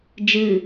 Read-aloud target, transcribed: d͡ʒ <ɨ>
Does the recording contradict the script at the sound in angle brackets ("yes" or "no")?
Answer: no